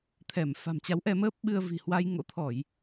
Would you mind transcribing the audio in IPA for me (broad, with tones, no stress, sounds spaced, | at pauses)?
t̪ʰ ɛ˧˩ m f a̤˨˩ m t͡ɕ a˨˦ w ʔ ɛ˧ m əː˦˥ p̚ ɓ ɨ˧ ə̯ v i̤˨˩ h w a˧ j ŋ o̰˧˥ t̪ʰ ɔ˧˩˨ j